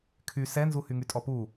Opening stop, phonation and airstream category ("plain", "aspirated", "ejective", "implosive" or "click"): aspirated